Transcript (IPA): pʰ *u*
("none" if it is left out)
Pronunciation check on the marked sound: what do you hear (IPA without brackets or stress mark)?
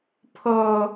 o